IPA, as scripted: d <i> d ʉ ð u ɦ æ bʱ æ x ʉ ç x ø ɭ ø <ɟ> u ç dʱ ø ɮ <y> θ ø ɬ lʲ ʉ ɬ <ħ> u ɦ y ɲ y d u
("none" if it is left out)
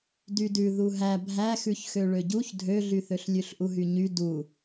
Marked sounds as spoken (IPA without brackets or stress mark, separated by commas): y, ɟ, y, ʔ